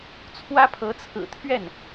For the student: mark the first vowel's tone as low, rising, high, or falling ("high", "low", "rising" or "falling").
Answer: high